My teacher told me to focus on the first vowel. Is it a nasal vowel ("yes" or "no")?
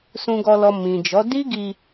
yes